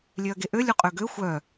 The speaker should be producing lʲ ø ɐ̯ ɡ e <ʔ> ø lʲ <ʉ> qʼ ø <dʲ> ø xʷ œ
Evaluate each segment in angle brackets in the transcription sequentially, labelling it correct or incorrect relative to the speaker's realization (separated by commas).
correct, incorrect, incorrect